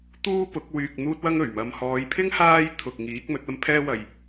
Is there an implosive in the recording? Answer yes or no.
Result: no